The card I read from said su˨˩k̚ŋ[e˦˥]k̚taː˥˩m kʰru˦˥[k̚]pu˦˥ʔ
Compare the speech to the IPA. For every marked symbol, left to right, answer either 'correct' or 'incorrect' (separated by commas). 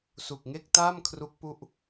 incorrect, correct